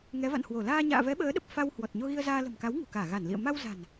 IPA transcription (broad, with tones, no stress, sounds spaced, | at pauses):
ŋ ɛ˨˦ v a̰˧˨ n h w o˧˩ l aː˧ ɲ a̰ː˧˨ v ɛ˨˦ ɓ əː˨˦ ɗ ə˨˩ p̚ f a˧ w h w ɔ˨˩ t̚ ɲ o˧ ɣ i˧ ə̯ z aː˧ l ə̤˨˩ m k a˨˦ w ŋ ṳ˨˩ k aː˧˩ ɣ a˧˩ n l ḭ˧˨ ə̯ m a˧ w z a̤˨˩ n